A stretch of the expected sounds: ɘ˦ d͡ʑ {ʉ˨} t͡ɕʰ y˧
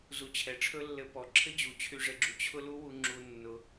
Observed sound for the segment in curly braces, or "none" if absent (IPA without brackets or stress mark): u˨